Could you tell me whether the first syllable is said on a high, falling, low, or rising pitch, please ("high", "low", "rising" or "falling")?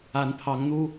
rising